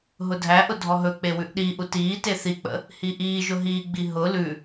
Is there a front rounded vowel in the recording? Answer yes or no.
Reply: no